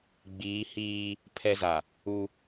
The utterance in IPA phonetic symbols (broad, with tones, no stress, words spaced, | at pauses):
ɡ͡biː˨˦hiː˦ | pʰɛ˦za˨ | u˦